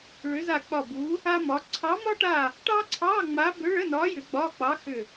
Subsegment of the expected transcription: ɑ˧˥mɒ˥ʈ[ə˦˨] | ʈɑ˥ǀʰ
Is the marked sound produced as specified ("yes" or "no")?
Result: no